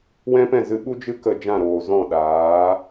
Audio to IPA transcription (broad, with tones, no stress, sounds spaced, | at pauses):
w ɛ̃˦ p ɛ̃˦˨ z ɨ˧ ɓ u˦ d͡ʒ ɨ˦ k ə˦˨ d͡ʒ ã˦˨ ɾ oː˨ z ɔ̃˦˨ ɗ aː˨˦